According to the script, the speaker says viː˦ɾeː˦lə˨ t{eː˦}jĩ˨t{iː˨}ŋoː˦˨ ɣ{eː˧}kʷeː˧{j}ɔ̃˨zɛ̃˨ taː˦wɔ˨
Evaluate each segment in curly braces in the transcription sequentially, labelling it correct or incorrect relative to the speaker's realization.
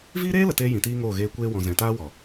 correct, incorrect: iː˦, correct, incorrect: w

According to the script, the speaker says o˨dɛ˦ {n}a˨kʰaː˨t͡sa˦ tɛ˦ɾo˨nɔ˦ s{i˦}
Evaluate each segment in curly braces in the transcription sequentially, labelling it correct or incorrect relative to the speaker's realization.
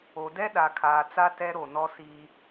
incorrect: ɗ, incorrect: iː˦

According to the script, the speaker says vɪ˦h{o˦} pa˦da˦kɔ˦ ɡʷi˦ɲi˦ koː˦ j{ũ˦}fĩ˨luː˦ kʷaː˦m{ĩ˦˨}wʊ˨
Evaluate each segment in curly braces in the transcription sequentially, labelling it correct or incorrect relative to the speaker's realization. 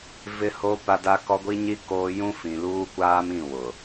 correct, correct, correct

